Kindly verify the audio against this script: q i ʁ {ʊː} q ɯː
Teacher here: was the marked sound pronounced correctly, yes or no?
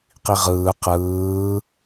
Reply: no